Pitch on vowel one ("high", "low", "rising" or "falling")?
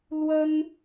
high